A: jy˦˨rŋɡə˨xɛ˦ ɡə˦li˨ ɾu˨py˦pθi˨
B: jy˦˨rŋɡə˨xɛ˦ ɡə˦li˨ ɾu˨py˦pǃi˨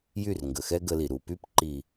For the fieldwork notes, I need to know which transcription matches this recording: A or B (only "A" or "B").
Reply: B